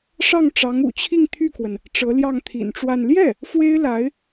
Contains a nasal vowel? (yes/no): no